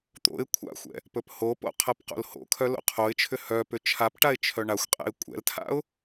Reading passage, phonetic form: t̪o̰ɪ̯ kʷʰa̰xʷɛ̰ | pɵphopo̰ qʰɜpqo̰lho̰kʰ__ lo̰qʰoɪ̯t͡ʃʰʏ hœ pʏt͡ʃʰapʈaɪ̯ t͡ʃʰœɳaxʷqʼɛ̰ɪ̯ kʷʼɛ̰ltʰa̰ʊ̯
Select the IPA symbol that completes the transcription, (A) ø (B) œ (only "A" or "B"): B